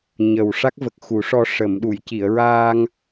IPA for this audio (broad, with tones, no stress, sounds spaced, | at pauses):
ɲ ə˨˩ w ʂ a˦˥ k̚ v ə˨˩ k̚ x u˨˩˦ ʂ ɔ˧ ʂ ə˨˩˨ m ɗ u˨˩˨ j c i˨˩˨ ə̯ ɹ aː˧ ŋ